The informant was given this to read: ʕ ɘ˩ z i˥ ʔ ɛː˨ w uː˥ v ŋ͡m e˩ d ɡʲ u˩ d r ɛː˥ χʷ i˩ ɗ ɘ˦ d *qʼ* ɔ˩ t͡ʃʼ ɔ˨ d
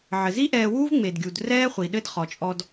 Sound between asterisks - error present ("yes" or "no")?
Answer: yes